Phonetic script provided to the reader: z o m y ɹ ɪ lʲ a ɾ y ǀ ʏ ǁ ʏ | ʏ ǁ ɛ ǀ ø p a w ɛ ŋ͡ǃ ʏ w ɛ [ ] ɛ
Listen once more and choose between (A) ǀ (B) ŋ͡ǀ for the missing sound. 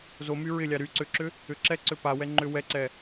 A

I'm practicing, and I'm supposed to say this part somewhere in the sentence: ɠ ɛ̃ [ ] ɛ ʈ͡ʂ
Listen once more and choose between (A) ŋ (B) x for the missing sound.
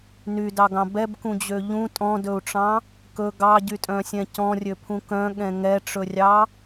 A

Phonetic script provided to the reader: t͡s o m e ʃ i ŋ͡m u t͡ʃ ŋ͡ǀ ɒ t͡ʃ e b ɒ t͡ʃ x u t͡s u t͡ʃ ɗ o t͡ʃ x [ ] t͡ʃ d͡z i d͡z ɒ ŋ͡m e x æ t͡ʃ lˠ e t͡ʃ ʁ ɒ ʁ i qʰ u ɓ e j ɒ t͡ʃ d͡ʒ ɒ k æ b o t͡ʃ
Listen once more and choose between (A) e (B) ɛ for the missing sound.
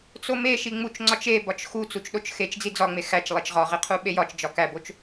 A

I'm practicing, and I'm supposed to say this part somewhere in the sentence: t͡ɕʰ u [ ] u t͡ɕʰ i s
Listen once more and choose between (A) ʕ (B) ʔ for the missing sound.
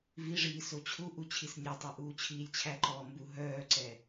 B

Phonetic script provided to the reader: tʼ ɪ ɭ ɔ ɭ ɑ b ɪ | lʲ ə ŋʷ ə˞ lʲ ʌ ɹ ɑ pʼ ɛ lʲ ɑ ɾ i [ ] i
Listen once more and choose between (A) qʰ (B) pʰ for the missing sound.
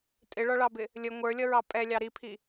B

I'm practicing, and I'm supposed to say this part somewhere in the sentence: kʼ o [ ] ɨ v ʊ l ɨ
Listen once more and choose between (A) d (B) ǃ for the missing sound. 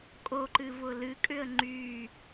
B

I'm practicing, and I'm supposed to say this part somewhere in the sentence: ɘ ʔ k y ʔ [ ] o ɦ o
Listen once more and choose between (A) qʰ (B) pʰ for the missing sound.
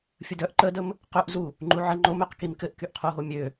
A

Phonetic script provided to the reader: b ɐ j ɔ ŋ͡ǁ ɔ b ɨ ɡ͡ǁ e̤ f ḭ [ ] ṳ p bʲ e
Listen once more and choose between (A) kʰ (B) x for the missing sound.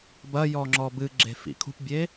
A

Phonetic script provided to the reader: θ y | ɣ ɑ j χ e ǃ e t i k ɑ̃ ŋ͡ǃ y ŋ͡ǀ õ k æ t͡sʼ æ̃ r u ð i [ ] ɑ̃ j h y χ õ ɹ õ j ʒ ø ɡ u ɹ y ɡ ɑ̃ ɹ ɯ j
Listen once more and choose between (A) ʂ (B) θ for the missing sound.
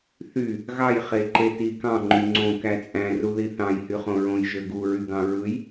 B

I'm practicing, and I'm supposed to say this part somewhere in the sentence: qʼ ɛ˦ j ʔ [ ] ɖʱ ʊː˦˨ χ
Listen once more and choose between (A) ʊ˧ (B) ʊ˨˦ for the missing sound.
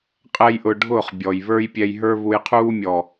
A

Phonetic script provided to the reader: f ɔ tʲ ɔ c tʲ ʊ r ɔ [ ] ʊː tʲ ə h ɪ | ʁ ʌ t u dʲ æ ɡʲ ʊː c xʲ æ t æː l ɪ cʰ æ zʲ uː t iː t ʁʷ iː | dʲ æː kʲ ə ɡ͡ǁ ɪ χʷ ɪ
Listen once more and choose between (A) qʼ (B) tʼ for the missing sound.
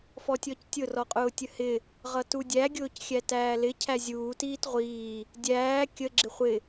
A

